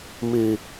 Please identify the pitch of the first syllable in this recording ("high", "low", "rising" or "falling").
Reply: low